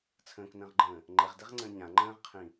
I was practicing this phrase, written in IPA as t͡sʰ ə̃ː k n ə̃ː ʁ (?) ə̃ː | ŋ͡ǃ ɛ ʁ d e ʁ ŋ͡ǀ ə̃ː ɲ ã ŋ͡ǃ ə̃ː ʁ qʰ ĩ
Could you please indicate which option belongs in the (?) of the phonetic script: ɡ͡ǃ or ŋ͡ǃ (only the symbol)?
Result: ɡ͡ǃ